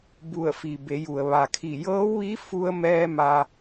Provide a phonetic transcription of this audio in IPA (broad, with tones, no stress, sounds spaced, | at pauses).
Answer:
b u˧˩ ə̯ f i˩ b e˩˧ j u˩ ə̯ ʋ a˩ kʰ i˧˩ j ɤː˧˥ w ʋ i˧˥ f u˧ ə̯ m ɛː˧ m a˧